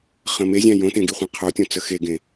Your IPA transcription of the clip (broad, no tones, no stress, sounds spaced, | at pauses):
χ ə̃ m e zʲ æ̃ j õ t ẽ ɡ i χʷ ẽ qʰ o tʲ õ t͡s ə x e ɡ ẽ